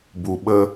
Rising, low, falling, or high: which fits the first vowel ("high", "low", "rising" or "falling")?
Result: low